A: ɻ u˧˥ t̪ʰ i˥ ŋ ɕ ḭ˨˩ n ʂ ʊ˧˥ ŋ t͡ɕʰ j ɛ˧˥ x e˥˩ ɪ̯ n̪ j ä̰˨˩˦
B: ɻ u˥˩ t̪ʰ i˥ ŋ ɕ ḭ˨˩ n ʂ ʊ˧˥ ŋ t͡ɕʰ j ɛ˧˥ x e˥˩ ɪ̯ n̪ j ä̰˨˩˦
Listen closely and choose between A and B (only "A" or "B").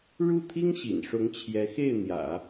B